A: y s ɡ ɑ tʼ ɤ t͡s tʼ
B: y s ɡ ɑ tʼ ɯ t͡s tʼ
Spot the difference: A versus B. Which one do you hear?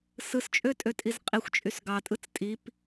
B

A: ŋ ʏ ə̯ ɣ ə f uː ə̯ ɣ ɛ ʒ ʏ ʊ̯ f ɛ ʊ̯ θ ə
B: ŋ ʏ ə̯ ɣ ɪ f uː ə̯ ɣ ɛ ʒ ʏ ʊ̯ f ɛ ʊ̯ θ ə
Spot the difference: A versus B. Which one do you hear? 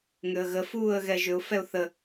A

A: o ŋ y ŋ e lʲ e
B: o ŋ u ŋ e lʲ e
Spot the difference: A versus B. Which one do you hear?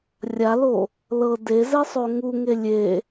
B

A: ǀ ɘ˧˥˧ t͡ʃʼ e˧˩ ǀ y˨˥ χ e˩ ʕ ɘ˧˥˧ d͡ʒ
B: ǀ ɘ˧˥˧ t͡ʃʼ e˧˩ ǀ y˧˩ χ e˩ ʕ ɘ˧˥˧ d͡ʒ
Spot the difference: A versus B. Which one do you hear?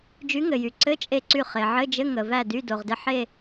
B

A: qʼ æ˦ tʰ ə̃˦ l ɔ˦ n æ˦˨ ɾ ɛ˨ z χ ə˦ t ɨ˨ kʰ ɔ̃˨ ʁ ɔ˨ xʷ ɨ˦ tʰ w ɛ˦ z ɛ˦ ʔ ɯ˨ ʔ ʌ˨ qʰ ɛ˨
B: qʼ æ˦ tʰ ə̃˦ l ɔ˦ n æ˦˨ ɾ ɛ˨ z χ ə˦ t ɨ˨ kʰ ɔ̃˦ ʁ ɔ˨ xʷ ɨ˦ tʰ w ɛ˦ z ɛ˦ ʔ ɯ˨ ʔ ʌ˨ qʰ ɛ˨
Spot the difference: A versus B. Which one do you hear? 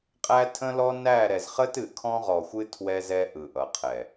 B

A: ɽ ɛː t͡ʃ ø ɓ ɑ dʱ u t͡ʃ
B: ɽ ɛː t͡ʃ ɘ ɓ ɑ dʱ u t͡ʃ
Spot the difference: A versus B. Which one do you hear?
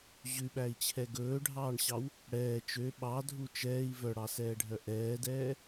A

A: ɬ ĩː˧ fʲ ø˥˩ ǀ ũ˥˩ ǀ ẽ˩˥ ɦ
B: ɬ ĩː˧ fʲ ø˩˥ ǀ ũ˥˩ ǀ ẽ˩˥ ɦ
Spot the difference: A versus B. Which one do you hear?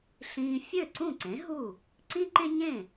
A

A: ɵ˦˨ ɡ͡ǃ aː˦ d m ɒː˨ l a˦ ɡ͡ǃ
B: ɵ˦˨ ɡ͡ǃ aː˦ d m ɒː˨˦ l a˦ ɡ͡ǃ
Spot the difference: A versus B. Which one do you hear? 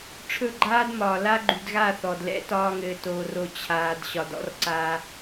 A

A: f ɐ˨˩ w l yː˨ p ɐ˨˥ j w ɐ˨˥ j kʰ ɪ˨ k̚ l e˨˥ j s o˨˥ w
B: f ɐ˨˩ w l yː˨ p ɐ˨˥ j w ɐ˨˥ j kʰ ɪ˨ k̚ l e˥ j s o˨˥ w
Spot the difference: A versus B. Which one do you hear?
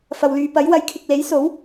A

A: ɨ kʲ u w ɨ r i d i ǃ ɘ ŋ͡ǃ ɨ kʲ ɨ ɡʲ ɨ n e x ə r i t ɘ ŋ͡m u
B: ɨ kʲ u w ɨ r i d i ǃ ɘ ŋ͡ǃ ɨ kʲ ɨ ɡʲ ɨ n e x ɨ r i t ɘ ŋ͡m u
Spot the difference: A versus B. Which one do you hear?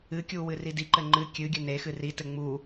B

